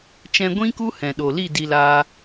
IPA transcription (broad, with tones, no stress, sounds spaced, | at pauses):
t͡ʃ ɛ̃˧ ɡʷ ĩ˦ k u˦ h ɛ̃˨ ɗ o˨ l i˦˨ d i˧ l aː˧